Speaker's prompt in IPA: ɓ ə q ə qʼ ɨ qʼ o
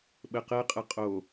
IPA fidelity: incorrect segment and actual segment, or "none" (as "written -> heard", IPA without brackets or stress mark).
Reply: ɨ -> ə